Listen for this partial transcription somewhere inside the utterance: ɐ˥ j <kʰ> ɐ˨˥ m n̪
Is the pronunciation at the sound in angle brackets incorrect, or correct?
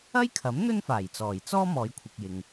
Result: correct